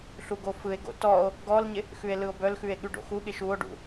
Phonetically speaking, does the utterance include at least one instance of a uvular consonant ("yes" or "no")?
no